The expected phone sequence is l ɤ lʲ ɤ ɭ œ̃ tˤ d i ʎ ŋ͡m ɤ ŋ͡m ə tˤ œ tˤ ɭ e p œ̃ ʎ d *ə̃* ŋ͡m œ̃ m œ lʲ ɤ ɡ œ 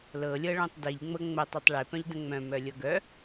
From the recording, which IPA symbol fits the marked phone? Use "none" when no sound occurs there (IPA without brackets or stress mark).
ə̃